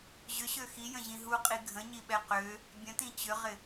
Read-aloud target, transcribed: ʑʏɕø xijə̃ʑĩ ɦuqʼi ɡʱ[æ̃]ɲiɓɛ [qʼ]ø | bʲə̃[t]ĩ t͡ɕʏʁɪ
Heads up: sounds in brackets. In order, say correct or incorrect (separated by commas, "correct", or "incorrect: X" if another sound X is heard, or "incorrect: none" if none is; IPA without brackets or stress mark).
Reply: incorrect: ə̃, incorrect: q, correct